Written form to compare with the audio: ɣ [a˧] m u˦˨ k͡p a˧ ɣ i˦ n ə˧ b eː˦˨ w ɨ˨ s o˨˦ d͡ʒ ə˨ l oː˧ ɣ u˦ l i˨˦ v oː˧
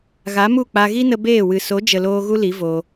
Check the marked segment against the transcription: incorrect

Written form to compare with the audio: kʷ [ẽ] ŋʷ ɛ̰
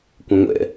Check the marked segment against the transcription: correct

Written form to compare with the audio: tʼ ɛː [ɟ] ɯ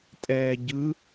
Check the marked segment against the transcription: correct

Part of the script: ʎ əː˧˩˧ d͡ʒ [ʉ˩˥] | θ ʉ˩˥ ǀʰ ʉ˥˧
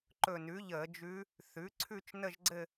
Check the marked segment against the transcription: incorrect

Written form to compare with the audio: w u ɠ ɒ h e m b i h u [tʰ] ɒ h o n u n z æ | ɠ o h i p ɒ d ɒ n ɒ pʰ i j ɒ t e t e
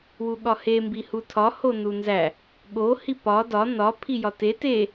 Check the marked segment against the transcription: correct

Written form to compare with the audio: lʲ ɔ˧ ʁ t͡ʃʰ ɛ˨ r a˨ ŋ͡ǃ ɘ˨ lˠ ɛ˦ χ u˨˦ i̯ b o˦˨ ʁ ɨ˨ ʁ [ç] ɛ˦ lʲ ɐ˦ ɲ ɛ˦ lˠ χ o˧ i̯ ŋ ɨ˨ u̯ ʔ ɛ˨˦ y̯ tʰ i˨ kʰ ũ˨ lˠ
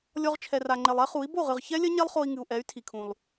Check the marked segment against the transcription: correct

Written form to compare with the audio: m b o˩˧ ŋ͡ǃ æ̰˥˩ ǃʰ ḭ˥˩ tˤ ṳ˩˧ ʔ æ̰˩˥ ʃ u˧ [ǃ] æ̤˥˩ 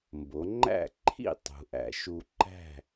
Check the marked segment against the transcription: correct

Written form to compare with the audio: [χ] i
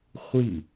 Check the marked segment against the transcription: incorrect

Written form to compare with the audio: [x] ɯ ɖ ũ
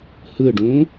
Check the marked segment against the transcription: incorrect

